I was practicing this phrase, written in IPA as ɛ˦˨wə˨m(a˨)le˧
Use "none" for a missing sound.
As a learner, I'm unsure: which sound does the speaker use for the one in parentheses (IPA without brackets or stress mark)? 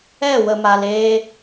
a˨